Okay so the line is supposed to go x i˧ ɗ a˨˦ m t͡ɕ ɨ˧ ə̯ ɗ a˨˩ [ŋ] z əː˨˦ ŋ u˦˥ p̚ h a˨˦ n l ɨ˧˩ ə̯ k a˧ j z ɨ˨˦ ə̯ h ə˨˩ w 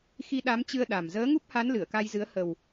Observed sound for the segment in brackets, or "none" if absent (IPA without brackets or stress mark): m